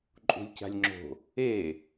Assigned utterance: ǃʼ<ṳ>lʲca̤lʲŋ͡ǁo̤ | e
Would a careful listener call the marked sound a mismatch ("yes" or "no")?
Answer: no